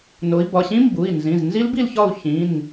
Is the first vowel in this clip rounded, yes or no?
yes